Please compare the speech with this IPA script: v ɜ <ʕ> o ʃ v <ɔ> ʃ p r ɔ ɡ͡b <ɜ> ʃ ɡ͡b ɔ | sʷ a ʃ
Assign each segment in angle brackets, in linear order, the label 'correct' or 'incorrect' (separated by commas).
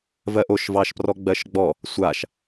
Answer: incorrect, incorrect, correct